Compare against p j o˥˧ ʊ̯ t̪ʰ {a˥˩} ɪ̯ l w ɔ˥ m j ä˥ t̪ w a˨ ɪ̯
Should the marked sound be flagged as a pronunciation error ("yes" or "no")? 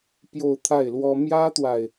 no